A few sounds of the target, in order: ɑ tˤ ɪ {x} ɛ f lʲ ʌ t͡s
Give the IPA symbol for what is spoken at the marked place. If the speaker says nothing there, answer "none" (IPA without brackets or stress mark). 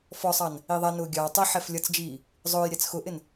ħ